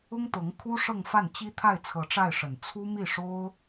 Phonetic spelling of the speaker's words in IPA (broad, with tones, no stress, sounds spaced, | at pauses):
ʊ˥ ŋ t̪ ɤ˧˥ ŋ kʰ u˥ ʂ ɤ˥˧ ŋ f a˥˩ n t͡ɕ i˥ t̪ʰ a˥˩ ɪ̯ t͡sʰ ɤ˧˥ ʈ͡ʂ a˥˩ ɪ̯ ʂ ə˨˩ n t͡sʰ u˥ m i˥˩ ʂ o˥ ʊ̯